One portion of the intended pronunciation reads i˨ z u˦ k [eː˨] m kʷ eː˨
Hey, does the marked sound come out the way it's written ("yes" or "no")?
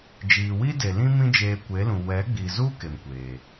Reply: no